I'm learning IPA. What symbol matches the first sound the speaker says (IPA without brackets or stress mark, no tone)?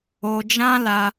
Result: o